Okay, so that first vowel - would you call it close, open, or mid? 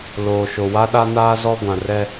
mid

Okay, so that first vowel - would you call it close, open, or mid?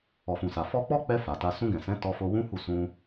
mid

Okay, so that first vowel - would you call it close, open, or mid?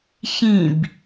close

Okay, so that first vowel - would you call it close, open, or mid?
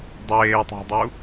mid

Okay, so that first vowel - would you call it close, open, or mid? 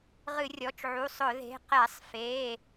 close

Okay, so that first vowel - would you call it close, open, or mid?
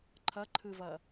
mid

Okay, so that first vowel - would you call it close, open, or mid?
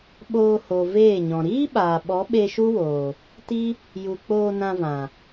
mid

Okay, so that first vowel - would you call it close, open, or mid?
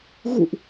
close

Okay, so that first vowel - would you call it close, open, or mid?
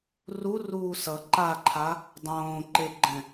close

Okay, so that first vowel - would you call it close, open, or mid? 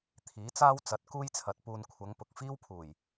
close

